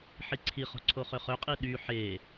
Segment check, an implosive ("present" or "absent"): present